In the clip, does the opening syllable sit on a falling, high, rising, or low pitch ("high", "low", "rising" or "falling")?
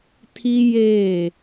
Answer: high